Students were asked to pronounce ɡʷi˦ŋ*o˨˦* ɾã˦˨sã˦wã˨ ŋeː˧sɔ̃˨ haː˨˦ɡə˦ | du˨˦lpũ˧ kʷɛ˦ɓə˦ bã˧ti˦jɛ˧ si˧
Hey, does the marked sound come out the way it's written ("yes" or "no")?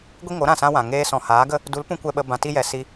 yes